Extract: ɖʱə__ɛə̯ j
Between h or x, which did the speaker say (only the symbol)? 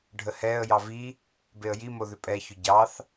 h